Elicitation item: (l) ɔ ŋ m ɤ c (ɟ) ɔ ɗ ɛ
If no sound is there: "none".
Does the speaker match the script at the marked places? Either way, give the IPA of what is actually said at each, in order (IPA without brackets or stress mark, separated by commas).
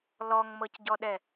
l, ɟ